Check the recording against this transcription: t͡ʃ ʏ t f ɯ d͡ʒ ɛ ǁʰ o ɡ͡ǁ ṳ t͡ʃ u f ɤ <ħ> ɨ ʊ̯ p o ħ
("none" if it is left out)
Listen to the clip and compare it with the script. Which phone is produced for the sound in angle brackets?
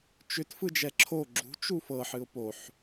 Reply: ħ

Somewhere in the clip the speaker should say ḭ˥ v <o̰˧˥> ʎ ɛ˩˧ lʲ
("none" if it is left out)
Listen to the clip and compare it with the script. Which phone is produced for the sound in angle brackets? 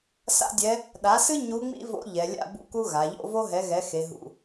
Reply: o̰˧˥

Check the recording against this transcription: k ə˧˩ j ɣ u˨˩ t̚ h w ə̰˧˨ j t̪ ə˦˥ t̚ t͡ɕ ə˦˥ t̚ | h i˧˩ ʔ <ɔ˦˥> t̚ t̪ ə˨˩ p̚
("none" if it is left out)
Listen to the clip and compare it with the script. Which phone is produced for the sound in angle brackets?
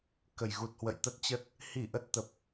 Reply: ə˦˥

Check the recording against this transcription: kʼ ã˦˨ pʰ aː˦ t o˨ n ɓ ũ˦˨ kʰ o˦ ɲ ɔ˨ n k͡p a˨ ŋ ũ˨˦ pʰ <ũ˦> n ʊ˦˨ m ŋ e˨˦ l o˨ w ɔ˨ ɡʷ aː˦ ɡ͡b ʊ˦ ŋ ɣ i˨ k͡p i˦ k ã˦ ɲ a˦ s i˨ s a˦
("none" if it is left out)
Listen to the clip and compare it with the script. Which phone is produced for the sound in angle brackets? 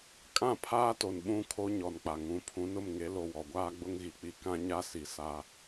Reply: ũ˨˦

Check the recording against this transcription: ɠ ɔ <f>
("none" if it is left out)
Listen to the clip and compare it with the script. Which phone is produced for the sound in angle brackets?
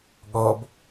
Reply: b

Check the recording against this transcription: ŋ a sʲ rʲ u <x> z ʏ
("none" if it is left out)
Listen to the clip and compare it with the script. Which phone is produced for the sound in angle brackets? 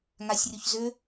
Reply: ç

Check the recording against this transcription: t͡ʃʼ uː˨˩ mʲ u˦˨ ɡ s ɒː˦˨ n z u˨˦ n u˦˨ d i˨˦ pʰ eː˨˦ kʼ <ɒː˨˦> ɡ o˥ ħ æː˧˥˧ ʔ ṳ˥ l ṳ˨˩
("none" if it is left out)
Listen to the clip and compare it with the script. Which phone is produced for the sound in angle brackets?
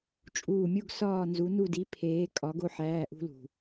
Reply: ɒ˨˦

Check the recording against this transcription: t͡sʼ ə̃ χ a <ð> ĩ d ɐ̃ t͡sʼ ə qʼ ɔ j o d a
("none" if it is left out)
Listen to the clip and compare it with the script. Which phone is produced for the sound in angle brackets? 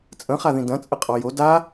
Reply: ð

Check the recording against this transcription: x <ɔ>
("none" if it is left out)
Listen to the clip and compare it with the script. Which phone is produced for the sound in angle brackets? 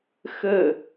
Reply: ə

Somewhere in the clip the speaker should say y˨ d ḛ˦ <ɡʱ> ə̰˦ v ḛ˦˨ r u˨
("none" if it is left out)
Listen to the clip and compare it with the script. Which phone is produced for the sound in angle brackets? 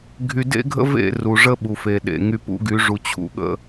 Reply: ɡʱ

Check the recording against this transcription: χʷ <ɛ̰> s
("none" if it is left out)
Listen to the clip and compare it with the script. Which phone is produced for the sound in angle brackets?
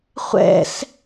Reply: ɛ̰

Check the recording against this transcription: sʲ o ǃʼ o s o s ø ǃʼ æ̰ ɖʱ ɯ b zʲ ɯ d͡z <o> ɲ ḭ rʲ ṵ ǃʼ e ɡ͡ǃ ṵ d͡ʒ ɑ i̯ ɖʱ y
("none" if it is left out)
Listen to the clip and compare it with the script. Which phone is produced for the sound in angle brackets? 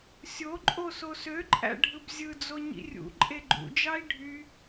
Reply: o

